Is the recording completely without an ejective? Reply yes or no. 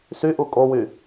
no